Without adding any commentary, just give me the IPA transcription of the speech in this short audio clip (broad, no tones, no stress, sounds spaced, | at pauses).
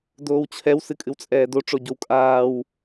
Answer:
d oː w t͡ɕʰ ɛ w s ɨ kʼ ɨ w t͡sʼ ɛː d o ʈ͡ʂ o ɟ o w kʼ aː w